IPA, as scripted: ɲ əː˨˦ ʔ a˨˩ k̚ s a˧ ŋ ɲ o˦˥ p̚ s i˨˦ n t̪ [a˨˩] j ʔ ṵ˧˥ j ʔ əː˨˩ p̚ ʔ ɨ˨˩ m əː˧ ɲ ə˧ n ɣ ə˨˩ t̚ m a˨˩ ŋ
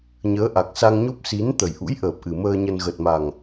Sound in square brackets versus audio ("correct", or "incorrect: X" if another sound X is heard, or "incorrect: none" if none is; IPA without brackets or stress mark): incorrect: ə˨˩